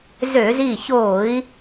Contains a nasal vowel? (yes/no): no